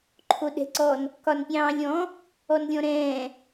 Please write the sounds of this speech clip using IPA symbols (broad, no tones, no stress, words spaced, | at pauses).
ǃʰoɗɛ̤ǀɔn | kɒnpʲɑ̃ːlʲɔ̃ | ɔnlʲɔ̃ɾɛ̃ː